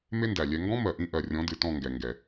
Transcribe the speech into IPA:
me˦ndæ˨lʲɛ˧ ŋɡɔ̃˦mɜ˨ʔĩ˧ ʔɜ˨ rʲɔ̃˨˦dɨ˨ tɔ̃˦˨ŋɡɛ˨ ŋɡɛ˨

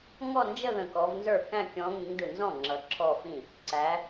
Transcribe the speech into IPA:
ŋɔ˥˧ nd͡ʒə˥˧ ðə̃˧˩kɔ˨˦v nzə˞˥˩kæ̃˥˧ kʲɔ̃˨˦ ŋĩ˨˦ŋdɯ˧˩nzɔ̃˥˩ ŋ͡ǁʌ˨˦ǁʰɔ˥˧fĩ˥˩ | ǀæ˨˦

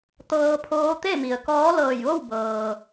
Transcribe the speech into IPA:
t̪ɤː˧pʰoː˧˥ t̪e˥˨mi˩ə̯kɔː˧˥ lɤː˧˩jʋo˥˨wbɤː˩

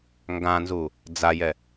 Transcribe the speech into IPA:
ŋɡãnzu | d͡zajɛ

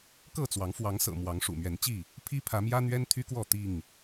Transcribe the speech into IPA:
kɤ˥˨t͡swɑ˨˦ŋ fwɑ˨˦ŋsɤ̰˨˩ mwɑ˨˦ŋʂṵ˨˩mɥɛ˨˦nt͡ɕi˥˨ | pʰi˦pʰä˨˦mjä˦ n̪ɥɛ˦nt̪ʰy˦kwɔ˥˨ t̪i˥˨ŋ

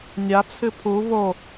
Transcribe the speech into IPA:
nʲat͡sʰɨ pʰu vo

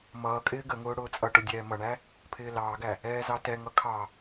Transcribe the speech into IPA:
mʌːkʼɪː ɡəŋʊː ɽʊːt͡sʼʌʈʊ dʲɛːmʌɳæ | pʰɪːlɑːɡæ | ɛːzɑtɛŋʌ kʰɑ

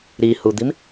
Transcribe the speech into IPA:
ɾihud̪im

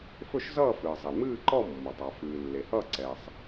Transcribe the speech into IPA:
fɵ˥˧ʃ zʌː˥˧ fɨː˩zˤe˩ mɨː˥˧ǃɔ˥˧ mːɔ˩tˤ a˩fɨː˩ lːe˩hʌː˥˧ ǀɛː˩sˤ

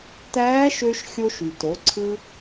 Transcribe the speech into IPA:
tæː˧˥ʃø˧ʃ xʲo˧ʃy˩to˩˧ǀʰɯ˧

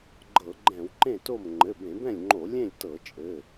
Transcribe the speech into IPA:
ɡ͡ǃɤ˧˩˧ɡ͡ǃɛ̃˧˩˧wǃẽ˥˨to˥˨m ŋ͡ǃɘ˩˧˩bẽ˧˩˧bɛ̃˥˨lʲŋ͡ǃo˧˩˧ lʲẽ˥˨lʲtɤ˧˩˧t͡ʃʼɘ˩˧˩

